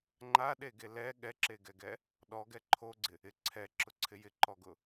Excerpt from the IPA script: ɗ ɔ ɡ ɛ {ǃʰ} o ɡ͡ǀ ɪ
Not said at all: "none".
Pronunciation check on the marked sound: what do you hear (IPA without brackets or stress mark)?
ǃʰ